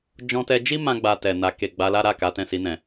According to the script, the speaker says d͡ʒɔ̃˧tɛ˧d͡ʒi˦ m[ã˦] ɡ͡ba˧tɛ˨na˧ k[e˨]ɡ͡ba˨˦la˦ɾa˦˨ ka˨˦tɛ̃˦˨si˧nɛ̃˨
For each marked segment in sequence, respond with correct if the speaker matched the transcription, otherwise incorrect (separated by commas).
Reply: correct, correct